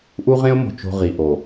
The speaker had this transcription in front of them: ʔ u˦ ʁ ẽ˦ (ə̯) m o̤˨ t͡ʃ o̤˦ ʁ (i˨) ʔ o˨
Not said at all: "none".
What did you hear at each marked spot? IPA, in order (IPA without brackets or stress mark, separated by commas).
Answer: ʊ̯, i˨